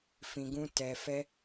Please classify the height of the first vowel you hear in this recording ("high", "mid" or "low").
high